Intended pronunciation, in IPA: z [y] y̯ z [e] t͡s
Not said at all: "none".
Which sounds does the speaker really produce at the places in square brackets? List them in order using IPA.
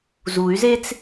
u, e

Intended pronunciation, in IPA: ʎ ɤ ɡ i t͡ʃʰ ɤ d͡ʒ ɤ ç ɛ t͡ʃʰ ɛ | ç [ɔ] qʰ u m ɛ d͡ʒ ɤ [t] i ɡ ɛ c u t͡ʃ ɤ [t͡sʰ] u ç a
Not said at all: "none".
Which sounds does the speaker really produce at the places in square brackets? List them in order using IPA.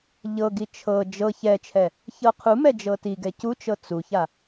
ɤ, t, t͡s

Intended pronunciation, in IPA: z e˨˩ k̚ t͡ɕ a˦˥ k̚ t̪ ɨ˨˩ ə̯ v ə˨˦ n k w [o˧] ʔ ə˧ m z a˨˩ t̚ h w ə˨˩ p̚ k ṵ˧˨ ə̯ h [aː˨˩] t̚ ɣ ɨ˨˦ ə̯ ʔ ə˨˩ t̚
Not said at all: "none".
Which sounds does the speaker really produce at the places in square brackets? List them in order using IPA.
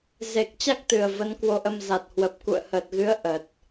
o˧, əː˨˩

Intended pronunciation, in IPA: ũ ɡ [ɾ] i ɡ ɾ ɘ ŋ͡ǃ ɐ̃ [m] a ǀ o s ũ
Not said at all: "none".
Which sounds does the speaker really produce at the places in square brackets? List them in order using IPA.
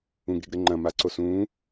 ɾ, m

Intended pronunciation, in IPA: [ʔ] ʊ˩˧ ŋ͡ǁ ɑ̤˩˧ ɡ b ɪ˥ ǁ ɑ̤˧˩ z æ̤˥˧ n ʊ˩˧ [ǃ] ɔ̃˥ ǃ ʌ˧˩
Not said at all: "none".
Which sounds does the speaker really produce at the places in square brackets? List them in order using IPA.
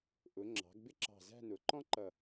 ʔ, ǃ

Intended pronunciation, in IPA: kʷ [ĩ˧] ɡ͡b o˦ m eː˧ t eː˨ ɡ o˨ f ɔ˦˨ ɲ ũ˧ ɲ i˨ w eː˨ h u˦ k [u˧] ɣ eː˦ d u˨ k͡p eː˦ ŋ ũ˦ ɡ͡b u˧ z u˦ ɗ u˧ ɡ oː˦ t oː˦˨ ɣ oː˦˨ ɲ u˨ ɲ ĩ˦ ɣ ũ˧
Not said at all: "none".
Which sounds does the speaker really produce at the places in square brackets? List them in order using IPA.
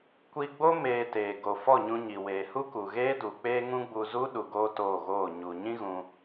i˧, u˨

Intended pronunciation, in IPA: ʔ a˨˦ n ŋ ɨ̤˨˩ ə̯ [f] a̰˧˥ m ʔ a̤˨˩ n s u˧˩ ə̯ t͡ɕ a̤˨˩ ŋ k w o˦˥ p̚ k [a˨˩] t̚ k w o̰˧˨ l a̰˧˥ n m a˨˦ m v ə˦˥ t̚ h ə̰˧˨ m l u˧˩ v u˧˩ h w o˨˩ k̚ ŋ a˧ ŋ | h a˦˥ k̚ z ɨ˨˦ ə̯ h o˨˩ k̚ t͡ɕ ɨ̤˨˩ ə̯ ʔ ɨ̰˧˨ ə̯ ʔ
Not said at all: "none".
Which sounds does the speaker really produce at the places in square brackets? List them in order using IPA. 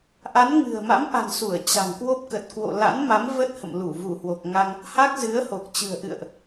m, ə˨˩

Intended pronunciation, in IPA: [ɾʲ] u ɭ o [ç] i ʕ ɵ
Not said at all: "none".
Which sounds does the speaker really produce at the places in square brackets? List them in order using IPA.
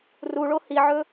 r, h

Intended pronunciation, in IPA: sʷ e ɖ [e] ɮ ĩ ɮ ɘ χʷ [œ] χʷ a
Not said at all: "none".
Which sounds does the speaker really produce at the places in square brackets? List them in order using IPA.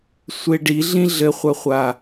i, œ

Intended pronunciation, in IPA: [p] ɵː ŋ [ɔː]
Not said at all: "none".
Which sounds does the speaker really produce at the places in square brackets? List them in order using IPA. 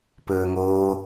p, oː

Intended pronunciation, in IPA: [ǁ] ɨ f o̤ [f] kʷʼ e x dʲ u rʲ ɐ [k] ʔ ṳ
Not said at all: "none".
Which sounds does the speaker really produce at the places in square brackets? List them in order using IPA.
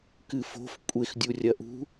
k, f, none

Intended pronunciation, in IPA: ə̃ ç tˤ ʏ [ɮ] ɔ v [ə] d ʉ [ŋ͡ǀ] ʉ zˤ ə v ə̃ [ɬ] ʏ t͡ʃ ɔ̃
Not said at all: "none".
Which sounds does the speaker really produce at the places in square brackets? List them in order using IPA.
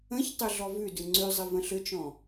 ɮ, ʉ, ŋ͡ǀ, ɬ

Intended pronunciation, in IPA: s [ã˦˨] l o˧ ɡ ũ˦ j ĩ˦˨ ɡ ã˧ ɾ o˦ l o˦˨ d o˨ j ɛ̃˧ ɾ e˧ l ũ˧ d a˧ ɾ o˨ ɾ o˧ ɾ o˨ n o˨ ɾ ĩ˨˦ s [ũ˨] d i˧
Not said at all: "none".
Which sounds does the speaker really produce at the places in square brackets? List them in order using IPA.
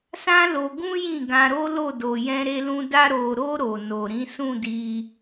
ã˦, ũ˦˨

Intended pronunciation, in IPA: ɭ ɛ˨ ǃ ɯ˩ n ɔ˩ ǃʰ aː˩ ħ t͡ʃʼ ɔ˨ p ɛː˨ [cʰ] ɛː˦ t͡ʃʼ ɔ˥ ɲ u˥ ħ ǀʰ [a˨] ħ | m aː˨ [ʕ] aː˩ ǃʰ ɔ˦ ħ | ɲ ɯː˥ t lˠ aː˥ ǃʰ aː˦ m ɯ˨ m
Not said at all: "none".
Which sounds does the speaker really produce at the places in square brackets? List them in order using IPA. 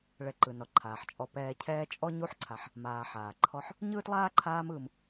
cʰ, a˨, ħ

